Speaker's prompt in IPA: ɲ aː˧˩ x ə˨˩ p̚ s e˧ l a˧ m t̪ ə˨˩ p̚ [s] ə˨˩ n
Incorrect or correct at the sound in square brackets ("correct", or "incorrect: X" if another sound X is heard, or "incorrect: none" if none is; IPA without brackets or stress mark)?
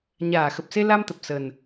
correct